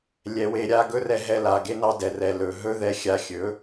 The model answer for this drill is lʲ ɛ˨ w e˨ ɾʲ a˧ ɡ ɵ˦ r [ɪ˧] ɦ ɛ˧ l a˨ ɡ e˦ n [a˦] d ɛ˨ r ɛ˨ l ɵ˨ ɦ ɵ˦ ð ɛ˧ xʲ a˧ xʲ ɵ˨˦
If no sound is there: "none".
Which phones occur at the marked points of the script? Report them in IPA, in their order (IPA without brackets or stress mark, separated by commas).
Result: ɛ˧, ɑ˦